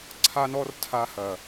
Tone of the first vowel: high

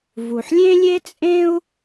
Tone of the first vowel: low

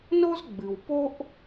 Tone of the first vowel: high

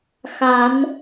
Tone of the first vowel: rising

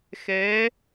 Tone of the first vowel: rising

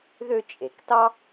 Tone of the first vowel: high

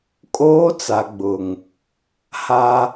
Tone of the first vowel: high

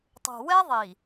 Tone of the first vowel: low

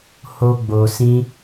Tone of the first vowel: high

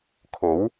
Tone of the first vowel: rising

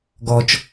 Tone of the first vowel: low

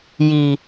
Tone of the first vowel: low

